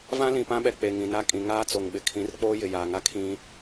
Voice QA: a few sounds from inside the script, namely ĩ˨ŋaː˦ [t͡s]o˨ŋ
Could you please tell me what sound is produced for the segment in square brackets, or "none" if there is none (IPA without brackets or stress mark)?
t͡s